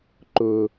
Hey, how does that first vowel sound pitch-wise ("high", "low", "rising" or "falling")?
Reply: low